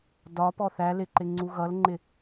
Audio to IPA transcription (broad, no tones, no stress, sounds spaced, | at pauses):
d ɒ p ɔ θ æ l ɪ ǃ ɪ ŋ͡ǀ u ɣ ʌ l ŋ͡ǃ ɪ